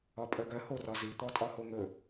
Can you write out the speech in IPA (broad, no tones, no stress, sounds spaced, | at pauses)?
ɒ pʼ œ ɡ œ h o r ɒ z i t̪ ɔ tʼ ɒ h o ŋ ɵ